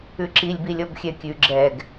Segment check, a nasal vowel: absent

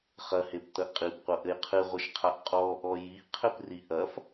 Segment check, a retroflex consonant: absent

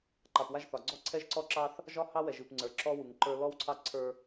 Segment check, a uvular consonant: absent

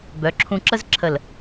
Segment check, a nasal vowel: present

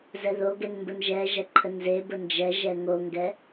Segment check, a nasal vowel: absent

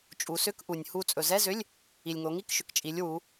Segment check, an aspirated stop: absent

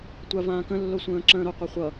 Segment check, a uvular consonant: present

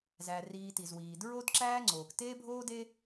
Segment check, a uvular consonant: absent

